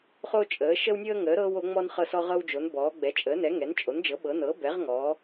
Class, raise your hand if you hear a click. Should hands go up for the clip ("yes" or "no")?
no